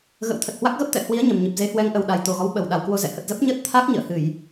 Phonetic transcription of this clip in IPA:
ɣə̰˧˥wt̪ʰə˨˩t̚ hwa˦˥k̚ɣə˦˥p̚t̪ɛ̰˧˨hwi˨˦ə̯ ɲə˨˩mɲɨ˨˩p̚ ze˨˦hwɛ˨˦ŋʔə˨˩wɗa˨˩j t̪o˨˩ɣɔ˨˦wɓə˨˩wɗa˨˩w kwo˧zɛ̰˧˨hə˨˩t̚ zə˦˥p̚ɲəː˦˥t̚ t̪ʰa˦˥k̚ ɲə̰ː˧˨hɨ˧˩˨j

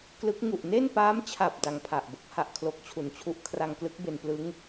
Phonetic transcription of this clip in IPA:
klɯ˦˥k̚ ŋu˨˩ʔne˥˩npaː˦˥mt͡ɕʰa˨˩p̚ da˦˥ŋpʰa˨˩ʔbo˦˥k̚ ha˥˩ʔkʰlo˦˥k̚t͡ɕʰu˨˩nt͡ɕʰu˥˩ʔ kʰra˧ŋklɯ˦˥k̚ be˧nplɯ˦˥ŋ

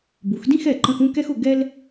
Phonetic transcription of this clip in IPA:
bu˩˧xdĩ˥˧xɛ˧˩ ǃə̃˧xũ˥˧ kɛ˥xʊ˧ ɡɛ˥l

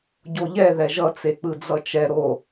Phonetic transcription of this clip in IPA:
ɟoʎɛ ðɛʒʌ t͡sek͡pɯd͡zʌt͡ʃɛ ɾo

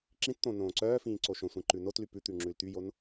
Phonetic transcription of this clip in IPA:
ǁĩtt̪õ nõːǀœːfĩː ǀoʃõsʷĩ ǃʉnotly pʉt̪ʉ ŋ͡ǁʉlt̪yjon

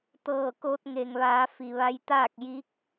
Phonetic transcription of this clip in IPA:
t̪ɤː˧˩ko˧t̚ ŋe˩ŋʋaː˩˧ fi˩ʋa˧jt̪aː˥˨k̚ ji˧˥k̚

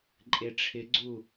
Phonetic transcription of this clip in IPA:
ǃʼeʈ͡ʂʰɪɡ͡ǀu

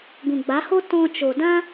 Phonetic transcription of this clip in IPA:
ɡũ˨ɡ͡ba˨˦ho˦ tɔ̃˧t͡ʃo˨dã˦

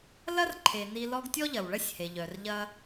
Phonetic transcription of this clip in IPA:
lɐ˦rǃʰe˩ni˨ lɔ˦ɡtʲɔ˥ʎɐ˩w ɭɐ˥sʲhe˩ʎœ˩rʎɐ˦

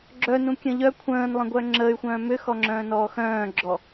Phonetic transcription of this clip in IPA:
ɡ͡ǁœnũ kʲə̃ʎœ kʷʰə̃ːnlˠə̃ɡʷœ ŋ͡ǁəːy̯xʷœ̃ː mʏxɔŋ͡ǁœ̃ːnɔː xœ̃ːɡ͡ǁɔ

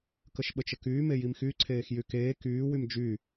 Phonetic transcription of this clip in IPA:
kəʃɓət͡ʃəkyː mejimxy ǀʰeːxjykeː kyː wymd͡ʒy

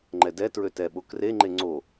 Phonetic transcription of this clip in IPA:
ŋ͡ǃɛdɛtɹø tɛɓo kreŋ͡ǃe ŋ͡ǀo

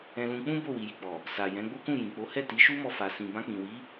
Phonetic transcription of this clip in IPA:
ɛ̃˧lũ˧k͡pũ˦ bo˦˨wi˨ji˨k͡pɔ˨ | sa˨jɛ̃˨˦ɡ͡bo˦kũ˦˨ jĩ˨k͡po˨˦hɛ˦˨ ti˨˦ʃu˦mɔ˧fa˨ sĩ˨ bã˧k͡pĩ˨wi˨˦

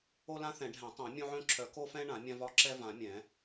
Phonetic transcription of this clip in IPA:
o˦lã˦ θɛ̃˨˩˦ɖʱɛ̃˨˩˦tˤõ˨˩˦ mʲõ˦ʕœ̃˦ǁʰœ˨˩˦ ko˦fɛ̃˦ ɳã˨˩˦mʲã˦vɒ˦ ǁɛ˦vã˨˩˦ mʲɛ̃˨˩˦

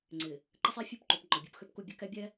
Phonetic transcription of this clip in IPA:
ŋ͡ǀɪ˨ | ǃə˦sˤi˦fʲu˦pǃu˨p ŋ͡ǃɔ˨bʲu˨˦pxø˦pku˦˨ bʲə˦kɛ˦bʲɛ˦

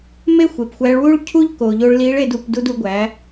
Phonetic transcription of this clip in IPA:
me˥ xʷe˩pxʷæ˧˥ɭ wu˥ɭcʰu˥ʎko˩ ʎo˧ɭli˧˥ɭe˧du˩˧p du˧du˩˧ɡʷæ˩˧

